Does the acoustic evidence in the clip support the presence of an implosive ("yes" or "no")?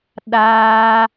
yes